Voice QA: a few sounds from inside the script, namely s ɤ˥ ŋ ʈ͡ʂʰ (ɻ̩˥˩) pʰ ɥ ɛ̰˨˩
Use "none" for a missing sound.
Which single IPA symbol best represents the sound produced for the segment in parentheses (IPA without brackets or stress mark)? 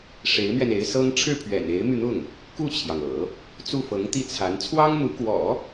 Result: ɻ̩˥˩